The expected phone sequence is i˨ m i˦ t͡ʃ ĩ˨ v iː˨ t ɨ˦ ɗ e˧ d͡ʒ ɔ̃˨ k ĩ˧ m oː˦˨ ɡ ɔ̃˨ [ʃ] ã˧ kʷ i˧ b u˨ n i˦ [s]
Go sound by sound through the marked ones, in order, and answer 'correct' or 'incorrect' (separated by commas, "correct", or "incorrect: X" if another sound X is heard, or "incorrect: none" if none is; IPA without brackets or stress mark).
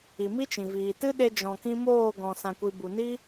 incorrect: s, incorrect: none